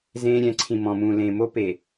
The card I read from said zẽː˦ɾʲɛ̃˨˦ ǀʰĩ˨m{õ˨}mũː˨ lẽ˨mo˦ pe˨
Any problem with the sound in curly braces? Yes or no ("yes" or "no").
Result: yes